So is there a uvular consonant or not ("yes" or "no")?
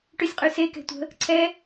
yes